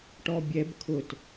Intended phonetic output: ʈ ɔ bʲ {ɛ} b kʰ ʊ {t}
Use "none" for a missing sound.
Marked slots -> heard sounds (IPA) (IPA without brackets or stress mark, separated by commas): ɛ, t